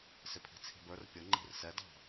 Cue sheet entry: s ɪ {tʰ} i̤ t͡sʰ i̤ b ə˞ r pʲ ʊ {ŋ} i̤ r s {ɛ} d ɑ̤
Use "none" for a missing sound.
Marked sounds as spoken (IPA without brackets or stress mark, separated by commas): pʰ, ŋ͡ǃ, ɛ